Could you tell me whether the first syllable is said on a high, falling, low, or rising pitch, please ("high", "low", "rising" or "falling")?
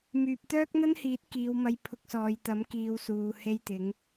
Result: low